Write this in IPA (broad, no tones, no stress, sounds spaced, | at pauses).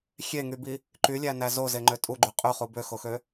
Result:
xʲ e ŋ y b i | ǃ y lʲ æ n æ z o z e ŋ͡ǃ ø tʼ u ɡ͡ǃ y qʼ y χ u b ø x o x ø